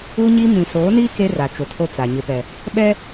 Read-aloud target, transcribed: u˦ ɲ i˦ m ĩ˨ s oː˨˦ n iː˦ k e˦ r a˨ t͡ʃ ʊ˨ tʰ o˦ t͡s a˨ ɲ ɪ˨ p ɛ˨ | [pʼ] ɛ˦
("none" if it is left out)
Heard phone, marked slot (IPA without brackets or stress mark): ɓ